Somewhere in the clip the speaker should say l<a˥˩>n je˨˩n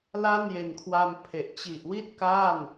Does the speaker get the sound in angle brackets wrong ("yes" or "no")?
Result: no